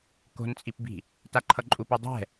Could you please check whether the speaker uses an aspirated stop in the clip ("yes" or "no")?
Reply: yes